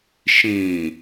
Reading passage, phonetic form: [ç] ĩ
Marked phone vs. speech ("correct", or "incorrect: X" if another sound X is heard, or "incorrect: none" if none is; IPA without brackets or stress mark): incorrect: ʃ